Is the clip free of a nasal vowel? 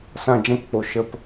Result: no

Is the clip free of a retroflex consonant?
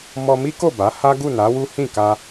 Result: yes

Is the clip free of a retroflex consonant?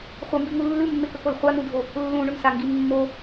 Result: no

